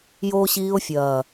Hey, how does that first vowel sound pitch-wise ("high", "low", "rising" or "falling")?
high